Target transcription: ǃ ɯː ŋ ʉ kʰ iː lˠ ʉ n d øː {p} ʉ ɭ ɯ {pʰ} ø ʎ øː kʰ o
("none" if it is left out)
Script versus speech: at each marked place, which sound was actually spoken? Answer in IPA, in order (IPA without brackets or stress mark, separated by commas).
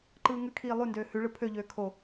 h, pʰ